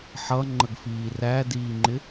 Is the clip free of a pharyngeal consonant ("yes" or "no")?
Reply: no